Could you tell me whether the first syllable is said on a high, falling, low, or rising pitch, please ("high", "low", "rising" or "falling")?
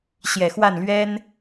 low